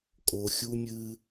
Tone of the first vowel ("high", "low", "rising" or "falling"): low